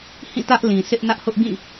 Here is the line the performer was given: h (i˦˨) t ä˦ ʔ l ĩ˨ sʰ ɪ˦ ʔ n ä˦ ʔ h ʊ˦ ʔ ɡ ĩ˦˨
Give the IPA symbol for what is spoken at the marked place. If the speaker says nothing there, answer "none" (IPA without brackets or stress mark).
ĩ˦˨